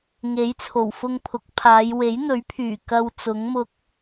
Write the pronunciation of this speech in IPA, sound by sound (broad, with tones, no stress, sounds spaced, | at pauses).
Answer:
ŋ e˨˥ j t͡sʰ o˨˩ w f ʊ˧ ŋ pʰ ʊ˨˥ k̚ pʰ aː˨˧ j w e˨˥ j n̪ ɵ˨˥ ɥ pʰ yː˨˩ k ɐ˧ w t͡s ʊ˨˥ ŋ m ʊ˧ k̚